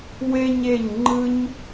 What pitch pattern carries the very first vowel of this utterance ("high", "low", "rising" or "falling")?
high